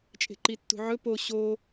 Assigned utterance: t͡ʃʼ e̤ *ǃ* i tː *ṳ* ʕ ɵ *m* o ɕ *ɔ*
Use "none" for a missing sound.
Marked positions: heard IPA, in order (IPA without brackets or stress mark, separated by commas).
ǃ, ṳ, p, o